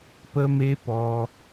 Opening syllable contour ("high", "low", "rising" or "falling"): high